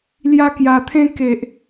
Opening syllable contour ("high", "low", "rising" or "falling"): high